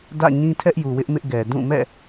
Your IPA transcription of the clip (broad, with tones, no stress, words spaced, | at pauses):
dä̰˦˨ ɲĩ˦tʰɛ˦ʔju˨wɪ˦ʔ mɪ˦ʔɡɛ˨ dũ˦˨mɛ̰˦˨